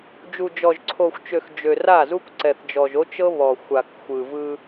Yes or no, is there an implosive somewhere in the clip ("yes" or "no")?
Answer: no